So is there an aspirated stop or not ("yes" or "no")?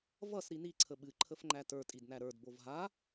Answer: yes